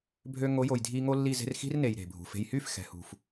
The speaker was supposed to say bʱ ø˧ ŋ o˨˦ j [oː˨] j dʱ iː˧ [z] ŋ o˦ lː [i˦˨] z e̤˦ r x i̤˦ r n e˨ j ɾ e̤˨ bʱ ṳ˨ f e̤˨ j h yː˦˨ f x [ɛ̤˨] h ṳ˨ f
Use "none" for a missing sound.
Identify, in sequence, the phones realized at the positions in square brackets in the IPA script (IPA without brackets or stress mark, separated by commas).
o˨, none, i˦˨, ɛ̤˨